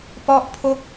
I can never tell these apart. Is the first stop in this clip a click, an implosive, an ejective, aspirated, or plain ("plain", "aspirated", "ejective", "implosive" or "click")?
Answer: plain